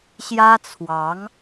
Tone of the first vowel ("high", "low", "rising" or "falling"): high